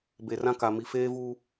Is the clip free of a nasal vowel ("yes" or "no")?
no